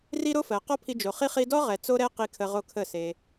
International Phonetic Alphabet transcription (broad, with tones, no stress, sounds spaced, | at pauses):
r i˦ ɾ o˦ f ɜ˨ q ɔ˦ pʰ i˧ d͡ʒ o˨ χ i˦ χ i˧ d ɔ˦ ʁ ɛ˨ t͡s o˦ ɾ ɛ˦ q i˧ kʰ ə˧ ʁ o˧ kʰ ə˦˨ s e˧